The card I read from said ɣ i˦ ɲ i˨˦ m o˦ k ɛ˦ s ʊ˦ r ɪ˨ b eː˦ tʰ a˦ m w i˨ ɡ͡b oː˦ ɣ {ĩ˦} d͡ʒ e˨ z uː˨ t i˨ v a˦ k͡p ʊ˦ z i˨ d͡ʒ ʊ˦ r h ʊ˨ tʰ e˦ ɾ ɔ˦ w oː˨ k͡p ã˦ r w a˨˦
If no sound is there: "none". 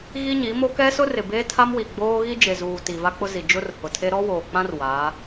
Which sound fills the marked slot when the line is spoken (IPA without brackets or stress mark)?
i˦